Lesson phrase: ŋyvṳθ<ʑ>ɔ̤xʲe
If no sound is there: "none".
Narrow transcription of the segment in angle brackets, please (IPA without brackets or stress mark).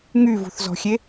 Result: z